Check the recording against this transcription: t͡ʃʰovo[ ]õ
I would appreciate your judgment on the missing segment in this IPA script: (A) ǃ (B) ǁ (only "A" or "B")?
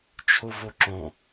B